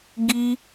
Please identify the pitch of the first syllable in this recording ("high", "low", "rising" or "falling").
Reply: high